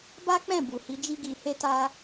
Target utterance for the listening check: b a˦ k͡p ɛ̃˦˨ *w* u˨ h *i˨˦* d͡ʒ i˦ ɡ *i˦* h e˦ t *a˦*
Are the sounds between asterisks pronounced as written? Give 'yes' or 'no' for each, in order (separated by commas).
no, yes, no, yes